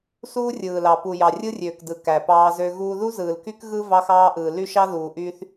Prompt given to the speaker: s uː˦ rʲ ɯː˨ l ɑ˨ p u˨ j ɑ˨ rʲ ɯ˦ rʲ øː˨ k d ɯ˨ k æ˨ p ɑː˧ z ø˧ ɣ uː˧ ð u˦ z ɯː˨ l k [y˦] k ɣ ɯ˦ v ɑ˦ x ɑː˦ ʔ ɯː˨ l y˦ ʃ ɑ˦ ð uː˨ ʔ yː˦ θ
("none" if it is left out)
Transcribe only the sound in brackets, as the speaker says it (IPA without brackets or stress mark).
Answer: y˦